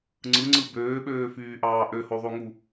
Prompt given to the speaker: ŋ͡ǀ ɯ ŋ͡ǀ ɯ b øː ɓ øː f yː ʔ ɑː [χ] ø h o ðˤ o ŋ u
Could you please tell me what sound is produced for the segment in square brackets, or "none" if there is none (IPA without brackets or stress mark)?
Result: ʔ